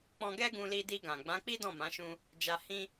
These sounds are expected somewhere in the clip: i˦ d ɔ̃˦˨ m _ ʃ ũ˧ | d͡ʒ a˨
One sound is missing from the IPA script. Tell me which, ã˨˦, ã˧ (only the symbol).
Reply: ã˨˦